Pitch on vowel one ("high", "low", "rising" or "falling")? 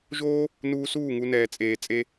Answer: high